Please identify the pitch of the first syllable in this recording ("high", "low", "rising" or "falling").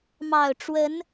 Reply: low